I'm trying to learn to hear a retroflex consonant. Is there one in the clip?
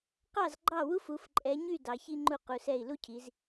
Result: no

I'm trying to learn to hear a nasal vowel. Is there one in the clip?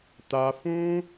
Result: yes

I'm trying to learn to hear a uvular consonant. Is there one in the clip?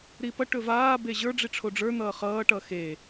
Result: yes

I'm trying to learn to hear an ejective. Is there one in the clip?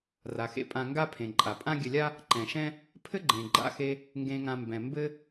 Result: yes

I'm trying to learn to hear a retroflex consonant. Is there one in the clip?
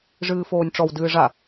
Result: yes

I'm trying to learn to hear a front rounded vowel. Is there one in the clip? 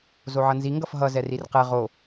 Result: no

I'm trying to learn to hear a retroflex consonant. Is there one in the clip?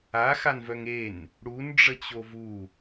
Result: yes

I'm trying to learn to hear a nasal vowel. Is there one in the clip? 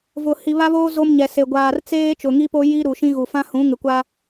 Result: yes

